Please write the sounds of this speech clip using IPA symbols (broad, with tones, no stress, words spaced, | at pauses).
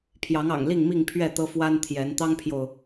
pʰjɑ˨˦ŋɑ̰˨˩ŋli˥˨ŋmi˥˨ŋ pʰɥɛ˥˨t̪ɤ˦fwa˦n t̪ʰjɛ˨˦n t̪ɑ˦ŋpʰjo˨ʊ̯